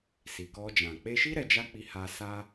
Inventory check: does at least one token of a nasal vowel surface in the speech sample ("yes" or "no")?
yes